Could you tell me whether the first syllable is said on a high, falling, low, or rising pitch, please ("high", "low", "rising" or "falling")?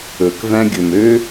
low